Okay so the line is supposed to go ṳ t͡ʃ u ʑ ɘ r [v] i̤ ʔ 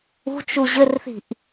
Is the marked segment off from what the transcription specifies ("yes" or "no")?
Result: yes